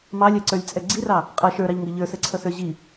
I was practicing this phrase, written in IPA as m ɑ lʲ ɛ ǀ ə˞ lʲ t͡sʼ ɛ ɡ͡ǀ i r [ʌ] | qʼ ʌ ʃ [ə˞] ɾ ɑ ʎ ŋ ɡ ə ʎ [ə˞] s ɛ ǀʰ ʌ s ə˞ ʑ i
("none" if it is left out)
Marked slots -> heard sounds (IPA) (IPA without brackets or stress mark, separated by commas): ɑ, ə˞, ə˞